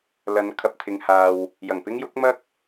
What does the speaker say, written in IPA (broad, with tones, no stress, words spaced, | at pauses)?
lɐ˨˧nkʰɐ˨p̚t̪ʰɪ˨ŋhaː˨w | jɐ˨˩ŋpɪ˥ŋ jʊ˨˥k̚mɐ˥k̚